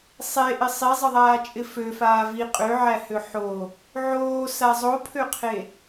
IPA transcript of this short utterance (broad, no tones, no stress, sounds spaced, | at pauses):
sˤ e ʔ ɪ sˤ i zˤ ɪ ðˤ aː t͡ʃʼ ɪ f ø f aː v i qʼ ø ʕ æ h ø ħ o | ʕ oː s a zˤ o pʰ ø qʰ e